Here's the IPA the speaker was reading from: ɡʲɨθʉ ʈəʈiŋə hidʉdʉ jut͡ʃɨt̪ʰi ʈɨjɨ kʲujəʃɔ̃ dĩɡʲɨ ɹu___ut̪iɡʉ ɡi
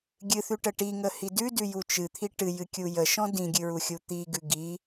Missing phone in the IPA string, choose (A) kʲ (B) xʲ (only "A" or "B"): B